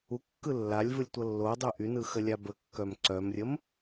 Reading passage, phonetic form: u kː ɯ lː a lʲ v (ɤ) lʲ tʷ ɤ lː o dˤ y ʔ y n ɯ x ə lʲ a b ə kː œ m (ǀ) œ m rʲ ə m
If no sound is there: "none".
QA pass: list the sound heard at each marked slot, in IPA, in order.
ɯ, ǀ

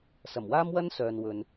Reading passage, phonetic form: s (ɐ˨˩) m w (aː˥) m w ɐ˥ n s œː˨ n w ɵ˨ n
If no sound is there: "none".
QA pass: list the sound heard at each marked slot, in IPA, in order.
ɐ˨˩, aː˥

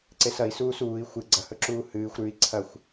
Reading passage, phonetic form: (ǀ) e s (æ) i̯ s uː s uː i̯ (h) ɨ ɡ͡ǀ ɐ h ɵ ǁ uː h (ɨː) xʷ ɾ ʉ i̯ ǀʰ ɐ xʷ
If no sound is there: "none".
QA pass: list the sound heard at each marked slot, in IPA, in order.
ǀ, ɐ, xʷ, ɨː

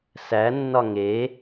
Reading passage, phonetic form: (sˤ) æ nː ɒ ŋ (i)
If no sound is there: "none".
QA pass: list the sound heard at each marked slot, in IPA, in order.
s, e

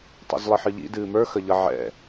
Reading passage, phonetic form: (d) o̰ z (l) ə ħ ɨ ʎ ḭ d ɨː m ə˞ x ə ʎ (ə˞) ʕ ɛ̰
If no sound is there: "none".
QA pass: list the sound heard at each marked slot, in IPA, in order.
tˤ, lˠ, ʌ

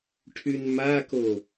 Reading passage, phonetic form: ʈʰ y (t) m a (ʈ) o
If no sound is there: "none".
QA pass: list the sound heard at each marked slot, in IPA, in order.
n, k

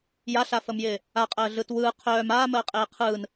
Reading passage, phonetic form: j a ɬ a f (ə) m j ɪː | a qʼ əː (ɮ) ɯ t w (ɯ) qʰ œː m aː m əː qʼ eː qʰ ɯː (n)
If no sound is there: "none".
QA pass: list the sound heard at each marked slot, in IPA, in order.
ə, ɮ, ɯː, n

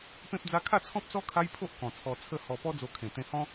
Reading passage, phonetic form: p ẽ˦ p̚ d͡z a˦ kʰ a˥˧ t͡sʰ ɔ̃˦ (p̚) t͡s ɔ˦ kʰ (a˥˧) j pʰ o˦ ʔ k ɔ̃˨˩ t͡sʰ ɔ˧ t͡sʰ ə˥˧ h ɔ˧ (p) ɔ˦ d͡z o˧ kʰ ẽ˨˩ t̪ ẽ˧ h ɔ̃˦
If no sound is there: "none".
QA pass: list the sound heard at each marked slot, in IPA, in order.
p̚, a˦, p

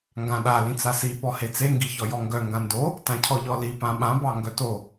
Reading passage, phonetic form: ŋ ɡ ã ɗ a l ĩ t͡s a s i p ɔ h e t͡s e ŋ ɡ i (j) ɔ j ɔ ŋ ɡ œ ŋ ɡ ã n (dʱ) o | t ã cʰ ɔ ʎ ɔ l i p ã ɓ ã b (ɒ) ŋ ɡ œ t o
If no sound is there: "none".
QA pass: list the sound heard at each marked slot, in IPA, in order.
ç, d, ɑ

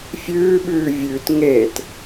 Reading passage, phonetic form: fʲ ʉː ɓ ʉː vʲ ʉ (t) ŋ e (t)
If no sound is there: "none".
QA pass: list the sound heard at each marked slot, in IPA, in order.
t, t

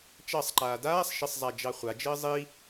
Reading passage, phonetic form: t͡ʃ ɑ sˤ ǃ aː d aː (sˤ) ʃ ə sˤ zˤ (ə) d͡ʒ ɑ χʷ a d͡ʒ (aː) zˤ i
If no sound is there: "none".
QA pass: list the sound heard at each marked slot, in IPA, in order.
sˤ, a, əː

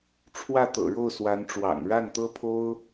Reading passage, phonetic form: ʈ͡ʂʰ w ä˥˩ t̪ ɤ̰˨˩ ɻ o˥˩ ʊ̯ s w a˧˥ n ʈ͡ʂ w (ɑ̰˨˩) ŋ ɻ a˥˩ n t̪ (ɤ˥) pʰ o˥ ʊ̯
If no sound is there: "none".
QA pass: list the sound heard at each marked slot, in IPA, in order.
ɑ̰˨˩, ɤ˥

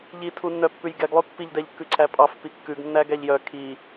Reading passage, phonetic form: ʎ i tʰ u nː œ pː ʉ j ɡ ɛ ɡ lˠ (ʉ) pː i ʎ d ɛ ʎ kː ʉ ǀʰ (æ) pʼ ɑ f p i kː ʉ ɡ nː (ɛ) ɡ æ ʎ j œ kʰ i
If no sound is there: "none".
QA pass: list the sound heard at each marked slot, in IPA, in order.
ʉ, æ, æ

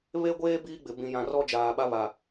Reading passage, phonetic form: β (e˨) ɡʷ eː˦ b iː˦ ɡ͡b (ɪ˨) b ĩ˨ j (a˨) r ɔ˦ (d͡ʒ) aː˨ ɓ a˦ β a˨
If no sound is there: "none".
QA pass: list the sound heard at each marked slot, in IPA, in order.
e˦, ɪ˨, ã˨, d͡ʒ

